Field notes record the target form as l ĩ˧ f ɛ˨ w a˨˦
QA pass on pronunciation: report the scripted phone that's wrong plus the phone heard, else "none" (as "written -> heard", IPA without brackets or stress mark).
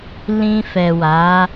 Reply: none